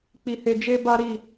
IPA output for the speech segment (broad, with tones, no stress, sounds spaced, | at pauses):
k͡p i˧ h e˧ d͡ʒ e˦ b a˦ ɾ i˦˨